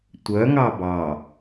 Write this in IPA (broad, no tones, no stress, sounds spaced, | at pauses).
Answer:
tʷ œ ŋ ɑ b ɑ